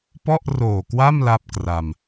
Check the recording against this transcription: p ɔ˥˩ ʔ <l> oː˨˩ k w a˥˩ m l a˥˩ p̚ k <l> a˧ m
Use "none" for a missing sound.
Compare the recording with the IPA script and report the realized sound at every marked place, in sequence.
r, r

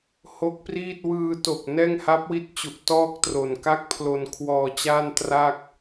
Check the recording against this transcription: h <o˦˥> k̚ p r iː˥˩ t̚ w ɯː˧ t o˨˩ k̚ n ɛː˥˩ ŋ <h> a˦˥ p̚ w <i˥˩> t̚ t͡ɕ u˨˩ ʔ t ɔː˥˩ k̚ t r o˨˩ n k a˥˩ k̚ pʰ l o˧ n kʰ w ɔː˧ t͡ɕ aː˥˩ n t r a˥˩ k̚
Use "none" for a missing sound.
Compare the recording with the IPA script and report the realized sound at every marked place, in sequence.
o˦˥, h, i˦˥

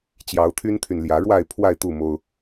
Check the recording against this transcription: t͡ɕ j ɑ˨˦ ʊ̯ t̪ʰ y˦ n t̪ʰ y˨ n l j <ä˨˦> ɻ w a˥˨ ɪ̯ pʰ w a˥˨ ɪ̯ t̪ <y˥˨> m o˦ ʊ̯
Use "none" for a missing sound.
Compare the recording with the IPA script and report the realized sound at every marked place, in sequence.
ä˨˦, u˥˨

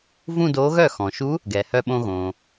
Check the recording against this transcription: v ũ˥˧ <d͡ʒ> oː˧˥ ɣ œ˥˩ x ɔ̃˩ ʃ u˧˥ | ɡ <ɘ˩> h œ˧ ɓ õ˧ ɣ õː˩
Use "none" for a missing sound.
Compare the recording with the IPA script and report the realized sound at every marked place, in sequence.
d, ɛ˩

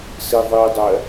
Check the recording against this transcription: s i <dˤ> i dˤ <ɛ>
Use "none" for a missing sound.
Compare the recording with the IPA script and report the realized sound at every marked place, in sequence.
ðˤ, ɛ

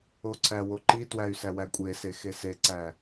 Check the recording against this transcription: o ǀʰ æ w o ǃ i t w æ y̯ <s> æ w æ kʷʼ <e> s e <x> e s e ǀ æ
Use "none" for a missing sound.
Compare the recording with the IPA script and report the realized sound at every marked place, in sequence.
s, e, x

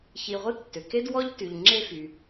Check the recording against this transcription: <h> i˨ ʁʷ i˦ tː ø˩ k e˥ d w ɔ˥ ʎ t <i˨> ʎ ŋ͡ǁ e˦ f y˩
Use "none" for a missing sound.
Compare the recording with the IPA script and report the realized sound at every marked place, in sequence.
ç, y˨

